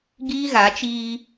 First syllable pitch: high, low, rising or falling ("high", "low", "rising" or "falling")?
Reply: high